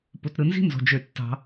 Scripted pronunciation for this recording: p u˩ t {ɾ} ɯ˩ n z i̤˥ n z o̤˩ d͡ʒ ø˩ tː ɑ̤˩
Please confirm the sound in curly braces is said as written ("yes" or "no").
yes